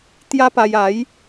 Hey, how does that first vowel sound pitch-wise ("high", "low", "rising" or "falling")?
high